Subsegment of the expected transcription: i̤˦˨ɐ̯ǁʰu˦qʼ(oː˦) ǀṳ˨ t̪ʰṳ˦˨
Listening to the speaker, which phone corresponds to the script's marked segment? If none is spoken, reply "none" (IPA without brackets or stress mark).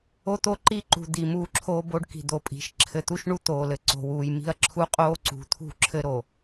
oː˦